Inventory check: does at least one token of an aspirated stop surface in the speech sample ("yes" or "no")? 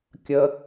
no